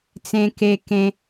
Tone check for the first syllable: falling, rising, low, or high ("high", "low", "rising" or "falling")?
low